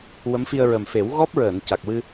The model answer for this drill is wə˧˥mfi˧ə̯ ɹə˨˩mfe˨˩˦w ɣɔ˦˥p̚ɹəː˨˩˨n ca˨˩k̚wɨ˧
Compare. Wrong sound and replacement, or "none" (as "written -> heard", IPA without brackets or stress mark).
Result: none